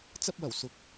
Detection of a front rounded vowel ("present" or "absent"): absent